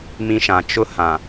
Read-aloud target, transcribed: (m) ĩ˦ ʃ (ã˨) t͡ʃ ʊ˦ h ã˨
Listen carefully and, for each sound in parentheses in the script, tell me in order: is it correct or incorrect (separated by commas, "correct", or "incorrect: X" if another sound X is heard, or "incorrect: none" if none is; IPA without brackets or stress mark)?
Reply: correct, correct